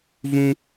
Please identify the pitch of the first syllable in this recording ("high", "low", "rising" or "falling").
high